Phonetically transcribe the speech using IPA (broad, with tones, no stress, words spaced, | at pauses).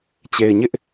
t͡ɕe˨ɪ̯ɲɪ˦ʔ